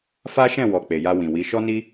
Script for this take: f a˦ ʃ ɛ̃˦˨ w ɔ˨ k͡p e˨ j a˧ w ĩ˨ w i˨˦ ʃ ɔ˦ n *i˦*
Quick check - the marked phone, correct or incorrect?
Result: correct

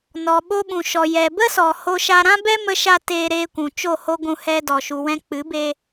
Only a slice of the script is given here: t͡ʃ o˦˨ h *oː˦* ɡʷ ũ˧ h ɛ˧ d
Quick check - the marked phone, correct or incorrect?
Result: incorrect: o˦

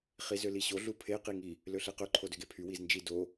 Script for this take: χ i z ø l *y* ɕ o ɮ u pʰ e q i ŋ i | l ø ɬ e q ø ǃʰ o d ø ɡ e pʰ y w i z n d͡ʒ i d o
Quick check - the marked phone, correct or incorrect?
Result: incorrect: i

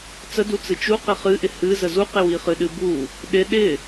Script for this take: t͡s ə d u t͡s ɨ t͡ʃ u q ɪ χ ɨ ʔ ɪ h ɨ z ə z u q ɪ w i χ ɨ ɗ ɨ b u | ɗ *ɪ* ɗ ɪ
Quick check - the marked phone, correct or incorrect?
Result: correct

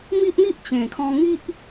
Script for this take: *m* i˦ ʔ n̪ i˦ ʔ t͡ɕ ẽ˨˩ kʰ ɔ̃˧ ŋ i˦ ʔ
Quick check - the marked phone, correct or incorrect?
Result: correct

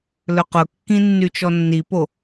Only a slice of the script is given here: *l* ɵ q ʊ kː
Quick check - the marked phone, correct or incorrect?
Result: correct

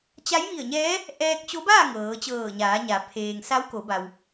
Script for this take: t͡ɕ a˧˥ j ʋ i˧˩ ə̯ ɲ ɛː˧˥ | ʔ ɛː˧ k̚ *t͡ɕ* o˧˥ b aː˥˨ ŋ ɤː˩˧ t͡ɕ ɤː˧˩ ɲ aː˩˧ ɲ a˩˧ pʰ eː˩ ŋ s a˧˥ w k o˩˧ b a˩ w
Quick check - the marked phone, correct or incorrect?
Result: correct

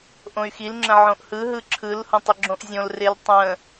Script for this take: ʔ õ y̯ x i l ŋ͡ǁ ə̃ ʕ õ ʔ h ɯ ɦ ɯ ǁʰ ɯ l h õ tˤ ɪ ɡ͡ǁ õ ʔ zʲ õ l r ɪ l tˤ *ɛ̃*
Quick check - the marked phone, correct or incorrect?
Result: incorrect: ə̃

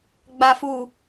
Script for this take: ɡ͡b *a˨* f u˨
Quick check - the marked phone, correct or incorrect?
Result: correct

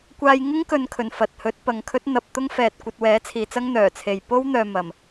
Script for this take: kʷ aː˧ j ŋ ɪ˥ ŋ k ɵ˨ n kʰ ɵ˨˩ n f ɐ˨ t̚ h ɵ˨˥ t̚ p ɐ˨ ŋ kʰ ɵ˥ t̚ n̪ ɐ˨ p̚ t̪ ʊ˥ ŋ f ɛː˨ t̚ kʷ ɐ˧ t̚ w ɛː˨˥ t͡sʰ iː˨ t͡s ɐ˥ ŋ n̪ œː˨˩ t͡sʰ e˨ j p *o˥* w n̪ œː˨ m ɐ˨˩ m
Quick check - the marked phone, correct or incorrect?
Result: correct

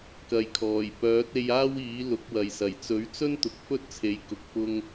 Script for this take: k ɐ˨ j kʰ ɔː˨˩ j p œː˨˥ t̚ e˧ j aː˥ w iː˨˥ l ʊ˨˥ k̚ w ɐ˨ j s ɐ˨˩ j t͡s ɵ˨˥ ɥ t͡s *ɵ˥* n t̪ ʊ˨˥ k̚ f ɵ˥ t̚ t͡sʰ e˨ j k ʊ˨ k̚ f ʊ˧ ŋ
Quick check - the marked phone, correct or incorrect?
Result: correct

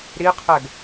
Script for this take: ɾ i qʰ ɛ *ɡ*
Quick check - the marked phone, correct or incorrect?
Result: correct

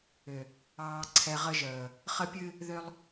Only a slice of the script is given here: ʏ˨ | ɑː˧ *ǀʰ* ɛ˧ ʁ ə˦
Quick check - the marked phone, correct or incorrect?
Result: correct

